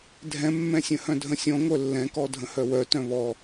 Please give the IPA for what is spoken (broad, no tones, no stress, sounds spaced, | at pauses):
dʱ ɛ̃ mː ɛ̃ sʲ ə̃ h œ̃ dʱ ə̃ sʲ ɔ̃ ŋʷ œ lː ɛ̃ k ɔ dʱ ə̃ h œ w œ t œ̃ β ɔ